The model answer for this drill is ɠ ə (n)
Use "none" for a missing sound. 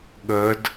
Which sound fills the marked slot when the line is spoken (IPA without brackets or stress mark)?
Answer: d